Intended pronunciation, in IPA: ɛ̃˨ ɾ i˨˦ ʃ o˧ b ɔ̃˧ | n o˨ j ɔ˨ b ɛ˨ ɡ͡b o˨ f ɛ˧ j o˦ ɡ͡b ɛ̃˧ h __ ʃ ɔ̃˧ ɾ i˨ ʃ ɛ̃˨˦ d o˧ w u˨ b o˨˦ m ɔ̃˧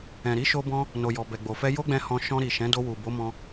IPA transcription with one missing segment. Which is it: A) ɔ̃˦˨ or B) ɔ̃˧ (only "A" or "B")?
B